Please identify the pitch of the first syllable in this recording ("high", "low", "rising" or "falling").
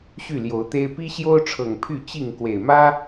falling